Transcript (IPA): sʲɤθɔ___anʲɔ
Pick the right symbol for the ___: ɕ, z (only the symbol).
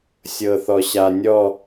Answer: ɕ